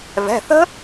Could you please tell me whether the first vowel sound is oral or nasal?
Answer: oral